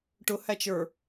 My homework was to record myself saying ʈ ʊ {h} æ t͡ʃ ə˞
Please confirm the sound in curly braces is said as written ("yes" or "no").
yes